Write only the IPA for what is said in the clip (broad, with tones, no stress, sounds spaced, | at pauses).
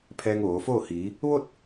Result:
pʰ ɛː˧ ŋ ʋ oː˩˧ f oː˥˨ h iː˩˧ | ʋ o˥˨ t̚